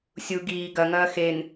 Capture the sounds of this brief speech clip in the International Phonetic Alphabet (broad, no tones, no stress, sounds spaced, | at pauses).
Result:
sʲ u ɡ iː ɡ ɐ ŋ ɐː x e n